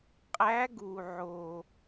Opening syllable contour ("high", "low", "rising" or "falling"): rising